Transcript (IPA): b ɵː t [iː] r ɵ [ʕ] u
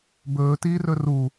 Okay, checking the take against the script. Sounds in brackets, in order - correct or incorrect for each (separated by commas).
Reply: correct, incorrect